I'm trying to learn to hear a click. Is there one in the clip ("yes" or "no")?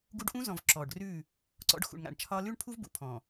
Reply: yes